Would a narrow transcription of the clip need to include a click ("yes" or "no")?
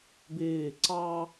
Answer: yes